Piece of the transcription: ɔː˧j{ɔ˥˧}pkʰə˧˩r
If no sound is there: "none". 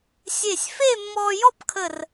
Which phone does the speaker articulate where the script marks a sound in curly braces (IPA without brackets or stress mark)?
ɔ˥˧